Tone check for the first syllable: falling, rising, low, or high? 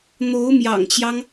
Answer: rising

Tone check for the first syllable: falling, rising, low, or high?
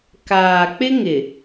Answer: low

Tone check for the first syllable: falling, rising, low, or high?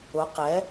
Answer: rising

